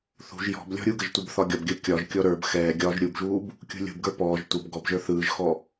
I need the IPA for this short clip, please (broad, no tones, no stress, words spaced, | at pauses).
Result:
θṳʒ jɔ̤b lʲɔ̤ɾʲuɡəʒ tʷɯbθɒɡʲɒbɡʲə˞ kʲɒʒkʲɔ ɾə˞b xɛːɡʲɒːʒ ɾʲubʒuːb | kʲṳlʲṳbɡə˞ pɔːʒ tʷəb ɡɔbʒə˞ θɯːʒxɔ